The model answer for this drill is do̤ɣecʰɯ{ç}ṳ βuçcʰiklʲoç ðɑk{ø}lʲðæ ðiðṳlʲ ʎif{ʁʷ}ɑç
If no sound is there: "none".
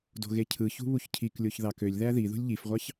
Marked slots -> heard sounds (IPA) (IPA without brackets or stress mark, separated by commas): ç, ø, ʁʷ